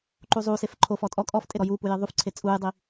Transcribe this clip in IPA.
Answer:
ǃ u zˤ uː s e f ǃʰ o f ɔ tʼ ɔ kʼ ɔ f tʼ e ɾ ɔ j u p u j i ðˤ u f ǀʰ e t͡sʼ uː j dˤ i

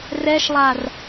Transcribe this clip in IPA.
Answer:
r ɛ ʃ lˠ a r

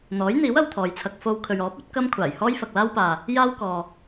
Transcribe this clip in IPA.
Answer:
n̪ ɔː˨˥ j n̪ iː˨˥ w ɐ˨ w t̪ʰ ɔː˨ j t͡sʰ ɐ˧ k̚ f o˧ w kʰ ɵ˨ ɥ ɔː˨˥ p̚ ɵ˨˥ t̚ k ɐ˥ m kʷʰ aː˨˩ j h ɔː˥ j f ɐ˨ k̚ l aː˥ w p aː˨ | j aː˥ w k ɔː˨

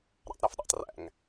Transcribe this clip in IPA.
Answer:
ɾ æ̰ tˤ ɾ æ f ɗ ḛ tˤ r æ̰ ŋ

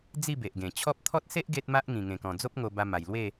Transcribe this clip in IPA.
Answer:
d͡z i˥˧ b e˨ ʔ ɡ ẽ˨˩ t͡ɕʰ ɔ˦ p̚ t̪ʰ ɔ˦ t̚ s e˦ ʔ ɡ e˦ t̚ m a˦ ʔ ŋ ĩ˨˩ ŋ ẽ˨˩ k ɔ̃˨˩ d͡z o˦ p̚ ŋ o˧ b a˧ m a˨˩ j l w e˥˧

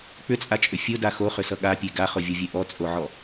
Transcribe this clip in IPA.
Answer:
k͡p ʏ t͡sʼ a t͡ʃʼ ʏ fʲ ʊ d a x o χ ʏ s ʌ ɠ a pʲ e ɡ a χ ʊ vʲ o vʲ e ʔ ɔ t͡sʼ o ʕ ɔ

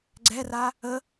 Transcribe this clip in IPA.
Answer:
ɡ͡ǀ ɛ r a | ə

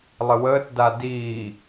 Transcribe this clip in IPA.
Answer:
lˠ ə w əː t d a d iː

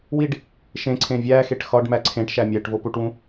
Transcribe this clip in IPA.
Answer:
w i ɖ | ʃ ẽ ǀʰ ẽ vʲ æ x e ʈ x ɒ ɖ m æ ǀʰ ẽ ʈ ʃ æ mʲ æ ʈ v o p u ʈ w ũ

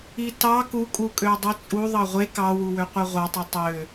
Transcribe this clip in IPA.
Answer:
i t ɑ k u kʼ u kʼ ø dˤ i t͡sʼ u ðˤ ɑ ʁʷ e k ɑ w u w ø qʷ e ʁʷ ɑ tˤ i tˤ ø

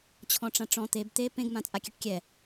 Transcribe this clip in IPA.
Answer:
t͡ɕʰ ɔ̃ ʈ͡ʂ ã ʈ͡ʂ ɔ̃ t̪ e b t̪ e p ẽ ɡ m ã t͡sʼ a kʲ ɛ ʈ kʲ ɛ

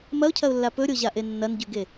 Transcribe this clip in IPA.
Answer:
m ɐ ʊ̯ cʰ ɐ ʊ̯ lː a p ɵ ɾʲ o ʑ a ʔ e nː ɐ n ɟ ʉ ɡ e

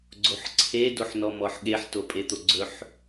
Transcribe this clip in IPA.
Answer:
ɡ͡ǀ o ħ ǀʰ e d o ħ n ɔ m ɔ ħ ɠ e ħ t o pʼ e t̪ o ɡ͡ǀ ɵ ħ

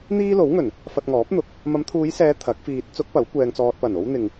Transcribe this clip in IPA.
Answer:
n̪ iː˥ l o˨˥ w ŋ ɵ˨˩ n | f ɐ˧ t̚ ŋ ɔː˨˥ p̚ n̪ ʊ˨ k̚ | m ɐ˨˧ m t̪ʰ uː˨˧ j s ɛː˨˧ t̪ʰ ɐ˨˥ k̚ f iː˧ t̚ t͡s ʊ˥ k̚ p ɐ˨˥ w kʷ ɛː˧ ŋ t͡s ɔː˧ t̚ p ɐ˨˩ n o˥ w n̪ ɪ˨ ŋ

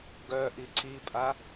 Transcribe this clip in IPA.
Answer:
ɡ œ ʔ i ǀ i pʼ a

